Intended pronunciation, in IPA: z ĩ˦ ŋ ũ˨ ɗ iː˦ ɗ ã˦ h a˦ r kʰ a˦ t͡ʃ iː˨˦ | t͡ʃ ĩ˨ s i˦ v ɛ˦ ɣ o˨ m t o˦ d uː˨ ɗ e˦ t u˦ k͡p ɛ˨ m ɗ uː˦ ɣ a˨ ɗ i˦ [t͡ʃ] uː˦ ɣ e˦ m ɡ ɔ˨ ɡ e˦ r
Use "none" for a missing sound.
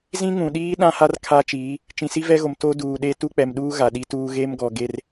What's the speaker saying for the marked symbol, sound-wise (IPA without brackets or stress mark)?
t